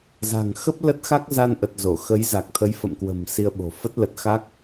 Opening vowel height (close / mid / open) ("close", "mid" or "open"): open